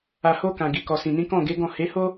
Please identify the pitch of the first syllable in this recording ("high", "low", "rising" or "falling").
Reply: low